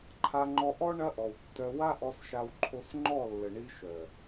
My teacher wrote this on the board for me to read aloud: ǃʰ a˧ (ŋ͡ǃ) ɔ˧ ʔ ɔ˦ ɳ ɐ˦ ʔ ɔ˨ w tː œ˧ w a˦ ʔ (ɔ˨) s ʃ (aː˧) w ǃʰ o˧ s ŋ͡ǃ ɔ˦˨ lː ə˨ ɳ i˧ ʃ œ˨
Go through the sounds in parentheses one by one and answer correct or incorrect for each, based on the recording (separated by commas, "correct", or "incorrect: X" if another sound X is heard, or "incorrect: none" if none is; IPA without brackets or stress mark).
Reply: correct, incorrect: ɔ˧, incorrect: a˧